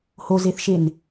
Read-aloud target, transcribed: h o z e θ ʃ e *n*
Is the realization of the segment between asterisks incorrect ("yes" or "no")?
no